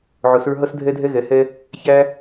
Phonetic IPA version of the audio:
ʕ ʊ˨˥ s ə˞˥ ɦ ʌ˥ s dʱ ɛ˥ dʱ ɛ˥ ɣ ɛ˨˥ h ɛ˥ | ç æ˥

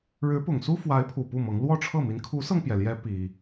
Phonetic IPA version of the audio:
ɻ ɻ̩˧˥ p ʊ˨˩ ŋ s u˥ f w a˧˥ ɪ̯ pʰ u˨˩ p u˥˩ m ɤ˧˥ ŋ l w ɔ˥˧ ʈ͡ʂʰ ɤ˥˩ m i˧˥ n kʰ u˧˥ s ɤ˧ ŋ p j ɛ˩ l j ɛ˧˥ p i˥

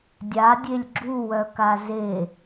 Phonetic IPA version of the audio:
dʲ a dʲ e lʲ ɡ͡ǁ u w œ k a z e

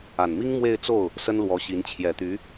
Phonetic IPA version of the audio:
a˨˩ n m i˥ ŋ m w e˥˧ ɪ̯ t͡s o˥˩ ʊ̯ | s ə˥ n l w ɔ˧˥ ɕ i˧˥ n t͡ɕʰ j ɛ˨˩ t̪ y˧˥

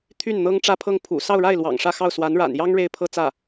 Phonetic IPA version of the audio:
t̪ʰ y˥˩ n n̪ ɤ˥ ŋ ʈ͡ʂ ä˥˧ pʰ ɤ˥˩ ŋ pʰ ṵ˨˩ s ɑ˥˧ ʊ̯ ɻ a˥˩ ɪ̯ l w ɑ̰˨˩ ŋ ʂ ä˥˧ x ɑ˥˩ ʊ̯ s w a˧˥ n ɻ a̰˨˩ n j ɑ˥ ŋ ɻ e˥˧ ɪ̯ pʰ ɤ˥˧ t͡s ä˥˩

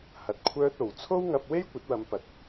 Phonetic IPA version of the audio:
h ɐ˧ t̚ kʷʰ œː˥ t̚ o˨ w t͡sʰ o˥ w ŋ ɐ˧ p̚ w e˥ j kʷ ɐ˨˥ t̚ w ɐ˨˧ m p ɐ˨ t̚

